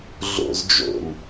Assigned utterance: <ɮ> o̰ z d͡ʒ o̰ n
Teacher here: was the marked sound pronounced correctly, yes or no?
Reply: yes